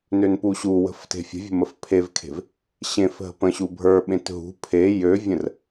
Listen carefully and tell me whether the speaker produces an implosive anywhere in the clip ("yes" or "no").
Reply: yes